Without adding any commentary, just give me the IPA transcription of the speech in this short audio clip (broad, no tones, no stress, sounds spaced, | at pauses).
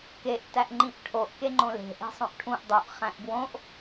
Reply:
k e ʔ t æ ʔ ŋ͡ǃ ĩ ʔ ʈʰ o ʔ k e ŋ͡ǃ õ l e̤ ʔ e̤ sˤ õ ʔ ʈʰ ũ ʔ dˤ u ʔ χ æ̃ ʔ b w õ ʔ